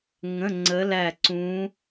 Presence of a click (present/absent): present